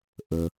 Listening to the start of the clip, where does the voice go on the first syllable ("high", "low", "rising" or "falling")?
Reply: low